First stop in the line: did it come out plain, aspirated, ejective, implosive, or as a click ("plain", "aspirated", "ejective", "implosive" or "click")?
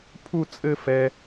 aspirated